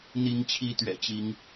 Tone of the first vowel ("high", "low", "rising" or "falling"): rising